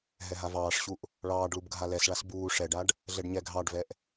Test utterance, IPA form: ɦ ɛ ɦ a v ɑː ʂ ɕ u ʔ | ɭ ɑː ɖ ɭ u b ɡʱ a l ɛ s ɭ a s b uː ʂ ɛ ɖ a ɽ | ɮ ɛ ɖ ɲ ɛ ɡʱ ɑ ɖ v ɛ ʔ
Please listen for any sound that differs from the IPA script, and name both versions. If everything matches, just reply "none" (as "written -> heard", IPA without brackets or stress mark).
ɽ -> ɖ